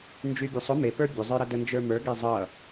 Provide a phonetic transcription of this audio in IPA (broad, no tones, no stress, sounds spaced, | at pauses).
n d͡ʒ y bʲ ə˞ sˤ ʊ m e p ə˞ bʲ ʊ zˤ ə˞ ɾ ʌ d ə n d͡ʒ ə˞ m ə˞ ɡ e zˤ ʌ